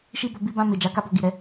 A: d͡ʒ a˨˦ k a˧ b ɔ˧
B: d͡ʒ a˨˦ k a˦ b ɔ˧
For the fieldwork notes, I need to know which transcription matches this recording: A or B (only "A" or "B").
B